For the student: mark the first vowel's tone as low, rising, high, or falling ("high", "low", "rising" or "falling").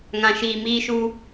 low